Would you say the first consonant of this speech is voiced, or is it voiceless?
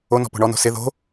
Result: voiced